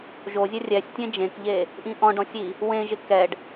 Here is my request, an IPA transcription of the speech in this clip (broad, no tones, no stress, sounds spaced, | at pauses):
ʒ o zʲ ɛ rʲ ɛ sʲ tʲ ẽ d͡ʒ ẽ k ʎ e | ʔ ĩ ʔ ɔ̃ ɖ ɔ̃ sʲ i | w ẽ ʒ ɪ k ɛ ɖ